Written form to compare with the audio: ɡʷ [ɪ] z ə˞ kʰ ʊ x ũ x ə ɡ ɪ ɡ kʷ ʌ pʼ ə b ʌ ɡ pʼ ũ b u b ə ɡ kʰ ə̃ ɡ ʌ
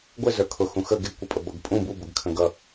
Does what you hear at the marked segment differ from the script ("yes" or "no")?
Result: no